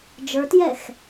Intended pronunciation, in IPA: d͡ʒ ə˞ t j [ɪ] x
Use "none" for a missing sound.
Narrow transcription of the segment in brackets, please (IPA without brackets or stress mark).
ɛ